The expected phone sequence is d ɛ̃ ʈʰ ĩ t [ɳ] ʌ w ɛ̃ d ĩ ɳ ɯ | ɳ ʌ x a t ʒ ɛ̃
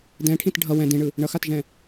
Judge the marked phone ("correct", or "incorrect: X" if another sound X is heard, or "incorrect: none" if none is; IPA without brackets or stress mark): incorrect: ɖʱ